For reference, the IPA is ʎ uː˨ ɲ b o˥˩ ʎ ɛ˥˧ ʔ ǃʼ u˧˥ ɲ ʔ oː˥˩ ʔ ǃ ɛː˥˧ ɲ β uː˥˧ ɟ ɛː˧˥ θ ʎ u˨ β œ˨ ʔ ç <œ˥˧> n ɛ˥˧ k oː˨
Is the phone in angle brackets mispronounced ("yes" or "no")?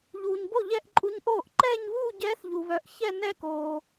yes